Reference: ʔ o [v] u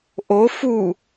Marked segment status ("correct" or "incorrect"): incorrect